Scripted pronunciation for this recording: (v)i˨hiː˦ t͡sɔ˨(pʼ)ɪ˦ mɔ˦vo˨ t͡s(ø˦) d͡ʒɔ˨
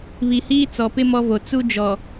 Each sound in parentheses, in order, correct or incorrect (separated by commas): incorrect, incorrect, incorrect